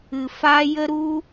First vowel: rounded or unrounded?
unrounded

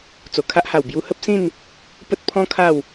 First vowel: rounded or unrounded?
rounded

